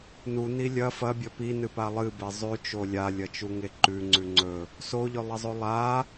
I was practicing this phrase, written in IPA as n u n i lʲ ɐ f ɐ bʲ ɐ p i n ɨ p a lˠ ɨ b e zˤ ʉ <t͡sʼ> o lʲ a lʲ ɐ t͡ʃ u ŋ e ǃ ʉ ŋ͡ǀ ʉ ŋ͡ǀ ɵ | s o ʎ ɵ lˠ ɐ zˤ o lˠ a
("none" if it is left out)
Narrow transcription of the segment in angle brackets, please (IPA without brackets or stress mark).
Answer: t͡ʃ